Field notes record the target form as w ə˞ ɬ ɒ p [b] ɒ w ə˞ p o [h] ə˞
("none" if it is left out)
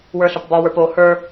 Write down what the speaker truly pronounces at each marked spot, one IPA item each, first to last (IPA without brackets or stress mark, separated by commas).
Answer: b, h